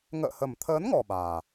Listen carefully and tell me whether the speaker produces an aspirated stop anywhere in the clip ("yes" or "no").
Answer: yes